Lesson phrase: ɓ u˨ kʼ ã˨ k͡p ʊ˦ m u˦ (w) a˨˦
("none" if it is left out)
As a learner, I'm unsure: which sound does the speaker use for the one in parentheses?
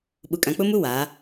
w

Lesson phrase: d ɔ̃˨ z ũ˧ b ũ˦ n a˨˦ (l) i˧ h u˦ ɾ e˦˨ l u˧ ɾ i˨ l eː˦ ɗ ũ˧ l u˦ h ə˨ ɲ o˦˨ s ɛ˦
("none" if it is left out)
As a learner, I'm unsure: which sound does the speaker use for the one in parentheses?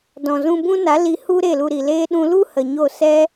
l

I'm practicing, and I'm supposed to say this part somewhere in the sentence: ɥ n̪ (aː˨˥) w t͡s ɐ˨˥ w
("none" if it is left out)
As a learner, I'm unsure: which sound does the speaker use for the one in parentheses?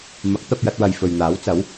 aː˨˥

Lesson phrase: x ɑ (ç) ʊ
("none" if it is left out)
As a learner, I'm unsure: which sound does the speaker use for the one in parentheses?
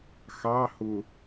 h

